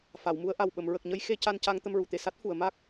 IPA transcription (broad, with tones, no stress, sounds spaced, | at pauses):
f a˨˩˨ w m u˧ ə̯ ʔ a˨˩ w ɓ ə˨˩˨ m ɹ ə˨˩ k̚ ɲ ə˧ j x e˧ c a˧ n c a˧ ŋ t̪ ə˧ m ɹ u˨˩˨ t̪ e˨˩˨ s a˦˥ t̚ f u˨˩˨ ə̯ m a˦˥ k̚